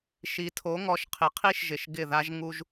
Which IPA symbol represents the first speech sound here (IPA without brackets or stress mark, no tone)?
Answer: ʃ